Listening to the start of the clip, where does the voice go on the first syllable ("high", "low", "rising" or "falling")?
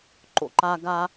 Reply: high